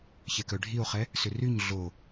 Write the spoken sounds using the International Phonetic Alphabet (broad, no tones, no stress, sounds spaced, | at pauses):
ç ɛ k œ ɖʱ i o̯ χ ɛ | s ʏ r y ɲ ɮ o